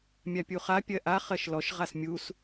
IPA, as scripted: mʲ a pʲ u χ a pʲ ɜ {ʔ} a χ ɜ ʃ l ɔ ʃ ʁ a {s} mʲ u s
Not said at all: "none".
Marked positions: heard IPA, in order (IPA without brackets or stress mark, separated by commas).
ʔ, s